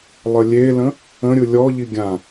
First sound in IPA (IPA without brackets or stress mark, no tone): lˠ